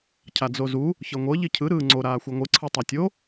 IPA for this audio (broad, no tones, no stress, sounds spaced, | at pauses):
cʰ a d͡z o z u | ç ɤ ŋʷ ɤ ʎ i cʰ ɯ ɾ ɯː ŋ͡ǀ o ɾ aː xʷ ɛ ŋʷ ɯ ǀʰ ɯ tˤ a tʲ o